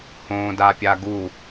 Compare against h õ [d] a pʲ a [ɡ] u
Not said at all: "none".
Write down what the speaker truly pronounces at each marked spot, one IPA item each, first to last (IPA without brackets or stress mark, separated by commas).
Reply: d, ɡ